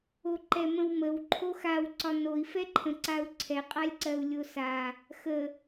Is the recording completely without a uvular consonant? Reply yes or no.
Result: no